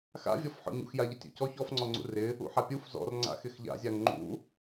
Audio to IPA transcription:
x a̰ vʲ ɔ f ħ ɔ̰ ɲ ṵ x j a ʎ ɪ tʲ ṵ c ɔ ç ɔ f ŋ͡ǀ ɔ ŋ͡ǀ ṵ r ɪ | ṵ ħ a pʲ u f z ɔ̰ r ŋ͡ǀ a̰ x ɪ x ʎ a̰ zʲ a ŋ ŋ͡ǃ ṵ

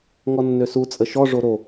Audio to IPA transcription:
ŋ ɔ nː ø s u t͡sʼ ə ʃ ɔ ʐ o ɾ o

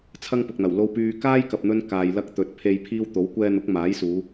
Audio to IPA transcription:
t͡sʰ ɐ˥ ŋ p ʊ˨ k̚ n̪ ɐ˨˩ w l o˧ w p yː˧ k aː˥ j k ɐ˨ p̚ n̪ ɵ˧ n k aː˨ j l ɐ˧ k̚ t̪ ɵ˨ t̚ pʰ e˧ j pʰ iː˧ w t̪ o˨˥ w kʷ ɛː˧ n̪ ʊ˨˥ k̚ m aː˨˥ j s uː˨˧

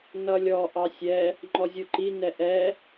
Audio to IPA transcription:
n ʌ lʲ ɔ ʔ ɑ sʲ ɛ | ŋ͡ǃ ɔ zʲ u ǃ i n ɛ ʔ ɛ

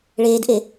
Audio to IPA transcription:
ɭ eː d ʔ e

